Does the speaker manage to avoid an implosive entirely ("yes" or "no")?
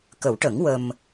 yes